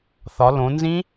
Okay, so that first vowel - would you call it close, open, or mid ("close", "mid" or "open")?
open